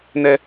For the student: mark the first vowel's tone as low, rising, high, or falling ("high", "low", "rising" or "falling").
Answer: high